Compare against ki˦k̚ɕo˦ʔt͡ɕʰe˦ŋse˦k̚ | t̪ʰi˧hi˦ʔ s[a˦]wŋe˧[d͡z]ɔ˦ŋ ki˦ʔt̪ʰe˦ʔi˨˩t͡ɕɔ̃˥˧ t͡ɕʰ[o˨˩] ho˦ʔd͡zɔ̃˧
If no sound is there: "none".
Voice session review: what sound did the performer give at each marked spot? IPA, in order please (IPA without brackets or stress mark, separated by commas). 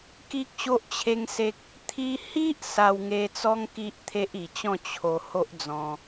a˧, t͡s, o˧